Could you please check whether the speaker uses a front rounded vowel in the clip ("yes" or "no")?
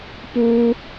no